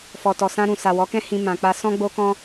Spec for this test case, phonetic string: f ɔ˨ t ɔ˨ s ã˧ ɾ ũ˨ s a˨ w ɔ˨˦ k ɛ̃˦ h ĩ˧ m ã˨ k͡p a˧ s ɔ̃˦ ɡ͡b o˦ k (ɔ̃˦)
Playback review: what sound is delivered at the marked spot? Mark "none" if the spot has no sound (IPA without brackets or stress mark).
ɔ̃˦